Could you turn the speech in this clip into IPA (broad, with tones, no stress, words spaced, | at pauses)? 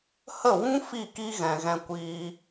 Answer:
hə˦˨ wũ˦ fi˦˨ki˦ ɣɛ̃˨ɣɛ̃˧kʷiː˧